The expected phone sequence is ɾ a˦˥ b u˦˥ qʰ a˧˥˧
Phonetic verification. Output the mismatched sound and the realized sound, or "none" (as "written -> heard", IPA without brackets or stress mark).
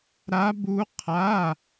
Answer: none